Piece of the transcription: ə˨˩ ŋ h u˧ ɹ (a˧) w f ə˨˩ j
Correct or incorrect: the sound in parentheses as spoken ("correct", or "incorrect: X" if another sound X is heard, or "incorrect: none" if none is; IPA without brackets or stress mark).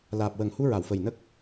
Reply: incorrect: a˨˩˨